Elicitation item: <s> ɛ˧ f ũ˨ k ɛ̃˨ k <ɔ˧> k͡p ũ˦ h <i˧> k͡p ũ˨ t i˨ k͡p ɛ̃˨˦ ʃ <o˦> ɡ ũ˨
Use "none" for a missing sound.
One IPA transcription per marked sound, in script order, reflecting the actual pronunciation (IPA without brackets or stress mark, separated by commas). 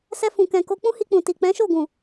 s, o˧, i˧, o˦˨